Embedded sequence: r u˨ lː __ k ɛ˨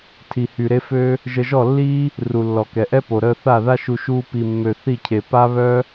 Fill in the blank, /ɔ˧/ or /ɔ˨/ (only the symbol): ɔ˨